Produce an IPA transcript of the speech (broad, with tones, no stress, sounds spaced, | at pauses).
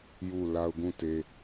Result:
j u˦˨ l a˦ ʊ̯ ɡ ũ˦˨ t e˦